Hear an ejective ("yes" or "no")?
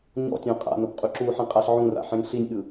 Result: yes